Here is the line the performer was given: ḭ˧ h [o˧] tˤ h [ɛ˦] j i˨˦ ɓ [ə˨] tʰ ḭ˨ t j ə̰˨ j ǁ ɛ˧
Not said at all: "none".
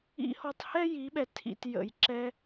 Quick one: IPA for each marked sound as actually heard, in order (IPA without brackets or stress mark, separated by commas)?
ɔ˧, ɛ˦, ɛ˨